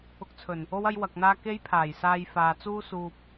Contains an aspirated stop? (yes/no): yes